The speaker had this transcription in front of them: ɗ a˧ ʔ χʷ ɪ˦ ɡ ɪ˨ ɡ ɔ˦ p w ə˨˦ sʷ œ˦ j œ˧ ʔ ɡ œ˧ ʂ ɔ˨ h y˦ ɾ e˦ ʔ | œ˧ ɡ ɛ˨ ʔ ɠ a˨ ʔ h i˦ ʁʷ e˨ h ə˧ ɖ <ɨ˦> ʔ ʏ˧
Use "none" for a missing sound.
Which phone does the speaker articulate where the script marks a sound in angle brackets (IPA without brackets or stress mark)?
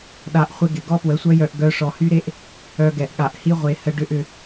ʏ˦